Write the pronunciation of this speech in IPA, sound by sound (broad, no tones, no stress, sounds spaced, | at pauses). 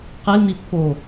q e l n̪ i pː o